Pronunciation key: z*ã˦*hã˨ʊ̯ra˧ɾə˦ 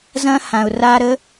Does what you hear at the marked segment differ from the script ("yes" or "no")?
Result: yes